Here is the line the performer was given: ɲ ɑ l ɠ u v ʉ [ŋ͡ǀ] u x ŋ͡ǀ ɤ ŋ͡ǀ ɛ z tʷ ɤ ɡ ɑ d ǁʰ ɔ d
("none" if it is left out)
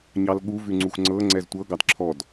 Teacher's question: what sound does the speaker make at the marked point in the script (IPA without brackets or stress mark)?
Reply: ŋ͡ǀ